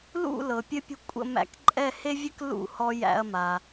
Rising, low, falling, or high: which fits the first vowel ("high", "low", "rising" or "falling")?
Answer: falling